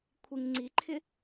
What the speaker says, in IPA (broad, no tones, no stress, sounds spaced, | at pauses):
kʷʰ i ŋ ŋ͡ǀ i ǃʰ ɪ